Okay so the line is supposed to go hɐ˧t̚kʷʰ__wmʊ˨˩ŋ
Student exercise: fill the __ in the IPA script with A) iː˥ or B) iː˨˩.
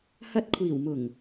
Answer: B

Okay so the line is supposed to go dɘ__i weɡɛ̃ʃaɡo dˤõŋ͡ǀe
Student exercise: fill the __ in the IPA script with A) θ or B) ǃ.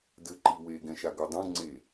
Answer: B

